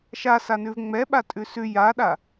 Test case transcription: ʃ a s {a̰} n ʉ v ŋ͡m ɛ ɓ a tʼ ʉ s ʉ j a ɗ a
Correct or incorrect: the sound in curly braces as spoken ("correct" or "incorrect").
incorrect